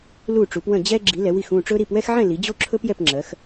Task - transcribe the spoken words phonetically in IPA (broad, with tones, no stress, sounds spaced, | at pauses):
l u˥˧ ʈ͡ʂ u˨˦ p w ə̃˥˧ d͡ʑ ɛ˥ ɡ͡ǁ i˨˦ l ɛ˨˦ w i˥˧ x ũ˥˧ ʈ͡ʂ ɵ˥ ɾ i˥˧ p w ɛ˥ x ʕ ɛ̃˥˧ l i˨˦ d͡ʑ o˥ ǁʰ ɵ˥ p j ɛ˥˧ p ŋ͡ǁ ɜ˨˦ x